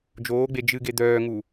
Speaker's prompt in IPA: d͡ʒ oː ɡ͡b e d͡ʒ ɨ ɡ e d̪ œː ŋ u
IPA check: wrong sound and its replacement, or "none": none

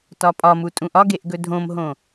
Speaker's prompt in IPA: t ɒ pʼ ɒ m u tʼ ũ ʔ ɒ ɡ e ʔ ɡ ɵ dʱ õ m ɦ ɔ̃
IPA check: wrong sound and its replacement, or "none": ɔ̃ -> õ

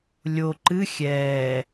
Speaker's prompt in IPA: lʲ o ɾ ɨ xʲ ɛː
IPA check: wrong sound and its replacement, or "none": ɾ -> ǃ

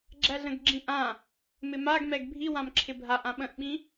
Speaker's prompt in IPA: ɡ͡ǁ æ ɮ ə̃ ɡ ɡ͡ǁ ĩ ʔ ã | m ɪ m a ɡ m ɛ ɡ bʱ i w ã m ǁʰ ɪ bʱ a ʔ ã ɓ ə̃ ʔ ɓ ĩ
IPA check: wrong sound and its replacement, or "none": none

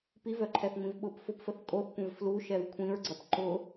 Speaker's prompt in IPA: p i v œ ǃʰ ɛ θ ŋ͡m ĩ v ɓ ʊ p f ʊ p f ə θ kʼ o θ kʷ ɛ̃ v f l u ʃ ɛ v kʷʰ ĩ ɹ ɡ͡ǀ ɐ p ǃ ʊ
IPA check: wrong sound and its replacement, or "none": none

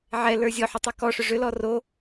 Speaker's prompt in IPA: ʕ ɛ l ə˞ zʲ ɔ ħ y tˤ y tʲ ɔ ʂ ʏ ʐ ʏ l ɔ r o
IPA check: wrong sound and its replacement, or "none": tʲ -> k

